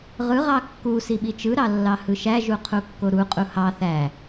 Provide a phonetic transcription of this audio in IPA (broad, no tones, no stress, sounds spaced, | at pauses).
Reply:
ʁ ɯ ʁ ɑ kː u s i ɓ i t͡ʃ ɯ ɾ ɑ lː ɑ h ɯ ʃ æ ʒ u qʰ u kː o ɾ u qʼ u h ɑ θ æ